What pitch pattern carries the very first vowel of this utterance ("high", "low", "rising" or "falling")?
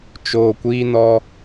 low